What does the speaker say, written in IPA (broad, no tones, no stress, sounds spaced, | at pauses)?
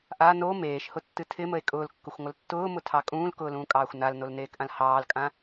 ʔ a n o m eː ʃ h ʊ tː ɨ tʰ ɪ m ə e̯ kʼ ʊː l kː ʊ xʷ ŋʷ ə l tː ʊː m ʊ tʰ ɑ kʼ ũː l k ʊː l ũː kʼ ɑː xʷ n a l n o l n eː k ʔ ã l h ɑː l kʼ ã